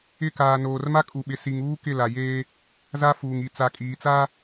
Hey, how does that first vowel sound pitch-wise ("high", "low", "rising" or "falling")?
falling